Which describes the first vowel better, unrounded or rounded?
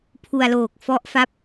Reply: rounded